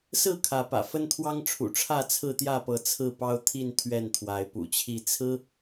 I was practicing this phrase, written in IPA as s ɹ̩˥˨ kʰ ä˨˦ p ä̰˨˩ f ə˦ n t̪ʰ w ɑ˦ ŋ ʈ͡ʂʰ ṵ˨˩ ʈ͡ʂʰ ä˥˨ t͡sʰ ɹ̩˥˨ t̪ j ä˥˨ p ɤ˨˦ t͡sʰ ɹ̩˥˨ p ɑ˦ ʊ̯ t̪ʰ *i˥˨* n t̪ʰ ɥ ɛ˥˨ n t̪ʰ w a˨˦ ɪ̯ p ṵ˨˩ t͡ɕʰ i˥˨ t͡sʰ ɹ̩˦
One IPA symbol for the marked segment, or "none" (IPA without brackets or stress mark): i˥˨